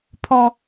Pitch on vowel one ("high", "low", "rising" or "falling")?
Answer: high